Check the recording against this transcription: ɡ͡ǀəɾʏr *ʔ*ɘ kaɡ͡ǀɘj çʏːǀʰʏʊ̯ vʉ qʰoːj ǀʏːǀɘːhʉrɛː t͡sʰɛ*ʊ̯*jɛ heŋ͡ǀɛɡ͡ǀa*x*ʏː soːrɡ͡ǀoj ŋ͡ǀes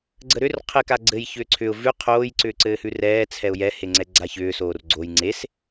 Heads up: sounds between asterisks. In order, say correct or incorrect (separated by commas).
incorrect, correct, incorrect